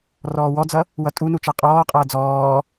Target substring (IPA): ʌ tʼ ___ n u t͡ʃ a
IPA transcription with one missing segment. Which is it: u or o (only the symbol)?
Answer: u